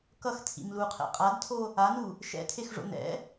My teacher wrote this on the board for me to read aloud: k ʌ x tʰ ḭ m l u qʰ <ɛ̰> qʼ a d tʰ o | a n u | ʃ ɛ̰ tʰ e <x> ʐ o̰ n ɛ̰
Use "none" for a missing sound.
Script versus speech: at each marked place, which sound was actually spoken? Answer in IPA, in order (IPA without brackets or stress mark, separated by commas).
ɛ̰, x